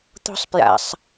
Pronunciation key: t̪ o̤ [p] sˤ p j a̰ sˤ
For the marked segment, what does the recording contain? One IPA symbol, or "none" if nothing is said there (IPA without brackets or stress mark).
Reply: none